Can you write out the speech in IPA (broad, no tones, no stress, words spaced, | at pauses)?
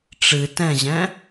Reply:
ʈ͡ʂɨ tɛ̃ʑɛ̃